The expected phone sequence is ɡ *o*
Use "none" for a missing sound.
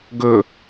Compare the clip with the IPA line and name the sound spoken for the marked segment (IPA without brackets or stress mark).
ɵ